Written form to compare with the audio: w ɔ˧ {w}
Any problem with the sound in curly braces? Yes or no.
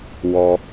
yes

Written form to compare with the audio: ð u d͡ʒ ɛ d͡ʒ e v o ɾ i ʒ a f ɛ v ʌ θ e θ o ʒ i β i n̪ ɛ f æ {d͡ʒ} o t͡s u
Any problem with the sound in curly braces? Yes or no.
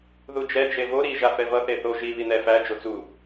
no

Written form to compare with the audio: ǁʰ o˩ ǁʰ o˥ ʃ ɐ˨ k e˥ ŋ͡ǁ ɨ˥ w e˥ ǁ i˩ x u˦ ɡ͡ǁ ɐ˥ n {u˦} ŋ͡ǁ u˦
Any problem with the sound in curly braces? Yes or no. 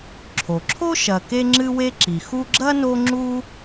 yes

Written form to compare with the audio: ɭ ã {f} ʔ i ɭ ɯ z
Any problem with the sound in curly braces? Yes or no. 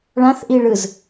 yes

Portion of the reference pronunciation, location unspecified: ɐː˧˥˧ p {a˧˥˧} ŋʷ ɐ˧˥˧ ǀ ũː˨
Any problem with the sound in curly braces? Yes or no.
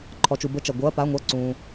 no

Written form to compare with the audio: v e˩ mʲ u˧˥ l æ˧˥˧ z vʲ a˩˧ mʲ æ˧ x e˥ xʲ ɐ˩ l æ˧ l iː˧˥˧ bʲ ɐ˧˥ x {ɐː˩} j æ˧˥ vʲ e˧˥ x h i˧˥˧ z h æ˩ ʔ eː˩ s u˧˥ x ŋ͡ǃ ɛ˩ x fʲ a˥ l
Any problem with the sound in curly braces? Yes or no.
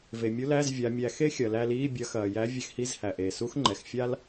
no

